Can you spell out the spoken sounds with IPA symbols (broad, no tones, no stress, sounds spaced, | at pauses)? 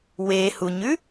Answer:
w e h u ɲ ʉ